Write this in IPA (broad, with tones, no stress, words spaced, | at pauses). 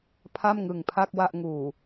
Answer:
pʰa˥˩mŋɯ˨˩ŋpʰa˥˩k̚ wa˥˩ʔŋuː˨˩